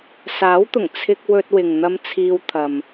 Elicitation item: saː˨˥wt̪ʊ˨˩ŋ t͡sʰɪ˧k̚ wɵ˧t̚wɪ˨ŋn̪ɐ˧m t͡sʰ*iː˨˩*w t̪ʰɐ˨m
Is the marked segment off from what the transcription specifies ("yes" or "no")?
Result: yes